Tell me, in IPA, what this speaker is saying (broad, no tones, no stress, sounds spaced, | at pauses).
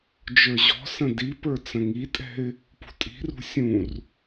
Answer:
d͡ʒ ə˞ ʑ ɔ̤ s ə̃ d i p ə˞ t͡s ə̃ ŋ i tʼ ɛ̤ ɪ̯ | p ṳ tʼ i̤ r ṳ sʲ ũ r